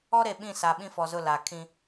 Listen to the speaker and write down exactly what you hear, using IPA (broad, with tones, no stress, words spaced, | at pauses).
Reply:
ɔ˦ɾe˨ ɓĩ˦˨sa˨ ɓĩ˦fɔ˨zʊ˦˨ la˨ kʰĩ˦